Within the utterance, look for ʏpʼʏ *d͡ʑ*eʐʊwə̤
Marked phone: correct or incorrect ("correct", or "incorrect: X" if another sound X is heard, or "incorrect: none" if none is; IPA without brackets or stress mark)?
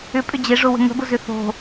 correct